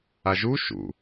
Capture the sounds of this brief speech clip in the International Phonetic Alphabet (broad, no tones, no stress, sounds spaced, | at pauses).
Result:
a ʒ u ʃ ṵ